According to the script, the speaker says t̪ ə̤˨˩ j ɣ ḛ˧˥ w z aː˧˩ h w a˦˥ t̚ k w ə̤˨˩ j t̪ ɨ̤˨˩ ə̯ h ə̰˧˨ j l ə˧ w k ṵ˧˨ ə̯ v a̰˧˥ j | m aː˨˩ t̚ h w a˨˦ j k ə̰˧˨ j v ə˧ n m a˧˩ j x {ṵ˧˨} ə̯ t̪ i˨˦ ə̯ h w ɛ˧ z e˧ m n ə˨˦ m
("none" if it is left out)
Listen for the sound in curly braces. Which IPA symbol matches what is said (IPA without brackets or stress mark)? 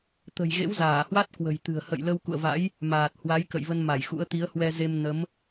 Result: ṵ˧˥